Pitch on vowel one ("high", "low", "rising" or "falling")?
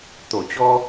low